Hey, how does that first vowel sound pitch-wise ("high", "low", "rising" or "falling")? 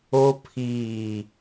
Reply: high